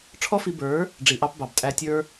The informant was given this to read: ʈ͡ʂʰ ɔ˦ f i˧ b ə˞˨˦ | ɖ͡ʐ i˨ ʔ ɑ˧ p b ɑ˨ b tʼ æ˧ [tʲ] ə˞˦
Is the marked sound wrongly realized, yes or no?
no